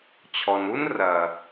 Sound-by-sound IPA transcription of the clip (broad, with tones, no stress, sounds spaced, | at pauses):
t͡ɕʰ ɔ˨ n u˦ n r ɐ˨